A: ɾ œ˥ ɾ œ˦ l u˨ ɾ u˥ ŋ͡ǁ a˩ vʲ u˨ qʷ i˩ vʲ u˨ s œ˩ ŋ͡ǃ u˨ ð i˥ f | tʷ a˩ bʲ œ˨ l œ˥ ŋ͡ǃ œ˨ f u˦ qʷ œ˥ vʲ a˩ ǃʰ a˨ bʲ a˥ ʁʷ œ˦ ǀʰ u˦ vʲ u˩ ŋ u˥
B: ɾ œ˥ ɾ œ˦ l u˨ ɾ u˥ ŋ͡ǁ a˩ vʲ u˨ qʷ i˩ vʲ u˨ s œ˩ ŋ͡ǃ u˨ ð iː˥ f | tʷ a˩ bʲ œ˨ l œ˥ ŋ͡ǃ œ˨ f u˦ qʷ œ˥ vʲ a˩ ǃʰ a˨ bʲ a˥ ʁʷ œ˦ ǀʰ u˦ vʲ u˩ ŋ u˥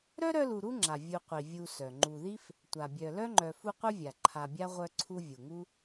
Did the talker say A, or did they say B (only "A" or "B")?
A